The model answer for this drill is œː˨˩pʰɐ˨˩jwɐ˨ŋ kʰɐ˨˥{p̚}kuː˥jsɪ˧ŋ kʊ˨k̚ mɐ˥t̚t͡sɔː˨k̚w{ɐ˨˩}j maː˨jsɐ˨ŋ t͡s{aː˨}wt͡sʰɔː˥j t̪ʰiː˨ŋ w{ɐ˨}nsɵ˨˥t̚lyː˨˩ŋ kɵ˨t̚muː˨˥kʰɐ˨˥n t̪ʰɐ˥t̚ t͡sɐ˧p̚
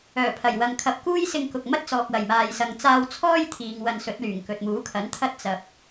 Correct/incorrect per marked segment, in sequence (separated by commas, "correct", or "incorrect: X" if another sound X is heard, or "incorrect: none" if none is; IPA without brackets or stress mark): correct, correct, incorrect: aː˧, incorrect: ɐ˧